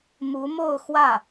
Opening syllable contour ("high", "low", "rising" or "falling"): rising